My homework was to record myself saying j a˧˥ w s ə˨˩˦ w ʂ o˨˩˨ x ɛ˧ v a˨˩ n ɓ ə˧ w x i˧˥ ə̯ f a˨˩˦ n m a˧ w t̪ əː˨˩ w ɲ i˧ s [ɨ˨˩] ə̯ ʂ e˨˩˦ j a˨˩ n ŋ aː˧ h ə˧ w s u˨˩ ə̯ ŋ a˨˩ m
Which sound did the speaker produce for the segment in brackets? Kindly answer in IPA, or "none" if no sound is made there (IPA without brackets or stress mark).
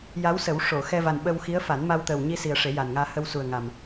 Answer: i˨˩